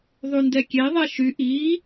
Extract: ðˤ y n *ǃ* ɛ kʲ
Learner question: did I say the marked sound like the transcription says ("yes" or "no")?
no